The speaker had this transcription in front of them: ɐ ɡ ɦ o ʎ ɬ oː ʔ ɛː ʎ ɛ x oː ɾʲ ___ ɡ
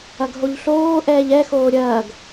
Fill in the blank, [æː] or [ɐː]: ɐː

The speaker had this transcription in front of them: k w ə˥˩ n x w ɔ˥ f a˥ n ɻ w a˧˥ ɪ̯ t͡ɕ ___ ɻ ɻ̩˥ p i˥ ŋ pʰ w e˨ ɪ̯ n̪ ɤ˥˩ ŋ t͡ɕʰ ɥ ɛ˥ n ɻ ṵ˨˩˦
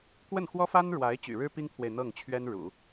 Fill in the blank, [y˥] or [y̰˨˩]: y̰˨˩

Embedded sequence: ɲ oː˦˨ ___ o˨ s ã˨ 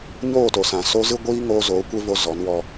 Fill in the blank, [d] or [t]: t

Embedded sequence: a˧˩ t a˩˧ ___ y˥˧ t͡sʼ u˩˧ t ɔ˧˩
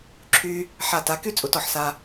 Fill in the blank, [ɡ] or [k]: k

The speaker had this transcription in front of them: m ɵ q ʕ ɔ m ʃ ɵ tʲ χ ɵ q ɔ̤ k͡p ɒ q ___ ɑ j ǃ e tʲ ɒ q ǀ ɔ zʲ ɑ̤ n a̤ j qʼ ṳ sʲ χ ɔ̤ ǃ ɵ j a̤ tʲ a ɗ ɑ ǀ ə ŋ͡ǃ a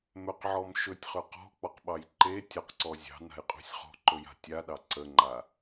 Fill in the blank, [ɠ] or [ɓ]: ɓ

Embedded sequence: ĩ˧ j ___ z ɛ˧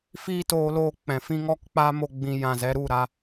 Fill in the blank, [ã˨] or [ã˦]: ã˨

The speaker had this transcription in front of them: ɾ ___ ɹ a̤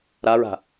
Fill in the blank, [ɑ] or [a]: a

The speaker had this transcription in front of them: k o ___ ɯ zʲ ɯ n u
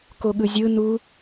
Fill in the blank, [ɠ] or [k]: ɠ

